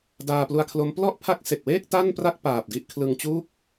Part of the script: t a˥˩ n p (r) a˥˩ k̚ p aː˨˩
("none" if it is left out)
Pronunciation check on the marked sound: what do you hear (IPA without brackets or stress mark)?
r